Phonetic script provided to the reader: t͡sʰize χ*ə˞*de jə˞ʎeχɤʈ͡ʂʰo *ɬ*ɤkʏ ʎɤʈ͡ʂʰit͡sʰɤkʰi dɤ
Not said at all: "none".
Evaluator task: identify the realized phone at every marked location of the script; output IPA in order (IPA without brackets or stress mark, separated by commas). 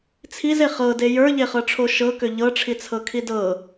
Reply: ɤ, ʃ